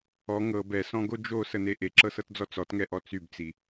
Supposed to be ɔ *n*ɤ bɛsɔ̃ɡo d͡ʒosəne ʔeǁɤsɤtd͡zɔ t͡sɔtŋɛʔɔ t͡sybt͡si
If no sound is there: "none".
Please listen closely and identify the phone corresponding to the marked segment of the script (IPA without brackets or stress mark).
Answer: ŋ